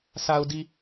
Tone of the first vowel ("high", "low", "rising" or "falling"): low